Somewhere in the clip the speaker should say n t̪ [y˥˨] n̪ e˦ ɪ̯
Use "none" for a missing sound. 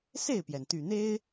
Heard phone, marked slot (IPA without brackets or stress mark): y˨˩